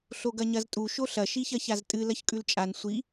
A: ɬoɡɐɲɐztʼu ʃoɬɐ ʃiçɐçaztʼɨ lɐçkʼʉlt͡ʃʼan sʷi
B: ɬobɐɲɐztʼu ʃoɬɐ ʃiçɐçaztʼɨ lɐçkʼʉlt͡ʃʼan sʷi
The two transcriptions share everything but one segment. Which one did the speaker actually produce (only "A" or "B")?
A